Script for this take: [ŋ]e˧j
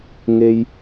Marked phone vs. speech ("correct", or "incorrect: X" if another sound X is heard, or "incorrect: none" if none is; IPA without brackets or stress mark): correct